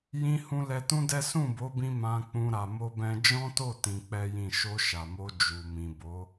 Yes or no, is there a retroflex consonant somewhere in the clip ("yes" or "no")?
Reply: no